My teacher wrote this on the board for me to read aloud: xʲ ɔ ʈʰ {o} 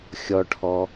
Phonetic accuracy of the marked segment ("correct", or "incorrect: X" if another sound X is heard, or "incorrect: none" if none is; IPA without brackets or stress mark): incorrect: ɔ